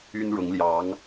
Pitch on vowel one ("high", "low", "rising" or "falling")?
high